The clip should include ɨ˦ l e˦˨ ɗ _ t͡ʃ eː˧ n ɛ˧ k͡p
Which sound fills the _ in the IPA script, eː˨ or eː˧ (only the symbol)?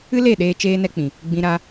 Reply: eː˧